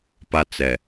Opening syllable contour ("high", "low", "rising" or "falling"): high